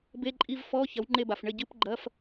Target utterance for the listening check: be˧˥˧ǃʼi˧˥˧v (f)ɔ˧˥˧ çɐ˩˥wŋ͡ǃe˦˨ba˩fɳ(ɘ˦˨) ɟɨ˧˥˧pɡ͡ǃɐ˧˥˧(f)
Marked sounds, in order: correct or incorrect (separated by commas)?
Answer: correct, correct, correct